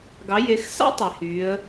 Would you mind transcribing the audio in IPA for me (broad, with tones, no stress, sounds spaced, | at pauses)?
ɡ ɑ˩˧ j e˩˧ x s ɑ̰˥ tˤ i˩ h yː˩˧ ə̯